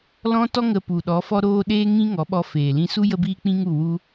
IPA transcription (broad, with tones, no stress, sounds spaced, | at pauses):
l ɔ̃˦ t ɔ˦ ŋ ə˨ p u˨ ɗ ɔ˨˦ f ɔ˦ ɾ oː˦ ɗ eː˦ ŋ ĩ˦ ŋ ɔ˨˦ ɓ ɔ˧ f eː˨ l ĩ˧ s u˦ j ə˦ b iː˦ k͡p ĩ˦ ŋ u˦˨ w u˦